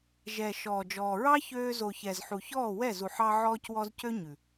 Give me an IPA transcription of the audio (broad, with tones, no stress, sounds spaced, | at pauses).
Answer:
ʒ ɛ˨ ʃ ɔː˨ d͡ʒ ɔː˨ ɹ ɑ˦ ç øː˧ z o˨ ç ɛ˨ z ħ u˨ ç ɔː˦˨ w ɛ˦˨ z u˨ ħ ɑ˧ ʕ ɔː˧ c w ɔ˧ z c ø˦ ɲ ʉ˨